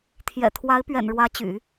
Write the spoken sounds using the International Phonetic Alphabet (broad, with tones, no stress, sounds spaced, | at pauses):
t̪ʰ j ɛ̰˨˩ t̪ʰ w a˧˥ ɪ̯ p ɥ ɛ̰˨˩ n ɻ w ä˧˥ t͡ɕ y̰˨˩˦